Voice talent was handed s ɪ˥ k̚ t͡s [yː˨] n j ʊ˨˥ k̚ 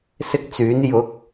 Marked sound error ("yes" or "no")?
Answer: yes